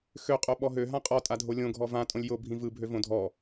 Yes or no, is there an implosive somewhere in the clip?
yes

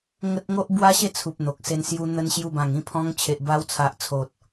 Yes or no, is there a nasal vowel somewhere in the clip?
yes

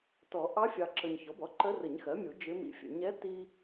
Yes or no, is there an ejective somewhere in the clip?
no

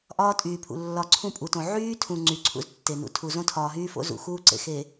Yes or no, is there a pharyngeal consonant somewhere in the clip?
yes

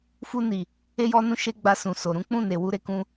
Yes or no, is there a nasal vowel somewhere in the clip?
yes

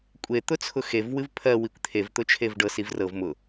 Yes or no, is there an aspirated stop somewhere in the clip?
yes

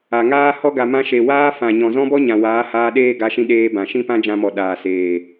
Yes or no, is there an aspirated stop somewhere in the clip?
no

